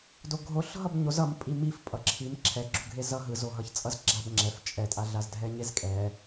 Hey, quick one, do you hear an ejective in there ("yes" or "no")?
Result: yes